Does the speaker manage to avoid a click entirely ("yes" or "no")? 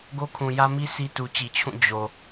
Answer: yes